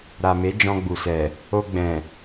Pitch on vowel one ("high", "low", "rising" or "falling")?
low